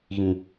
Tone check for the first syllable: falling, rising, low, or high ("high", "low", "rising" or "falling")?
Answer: low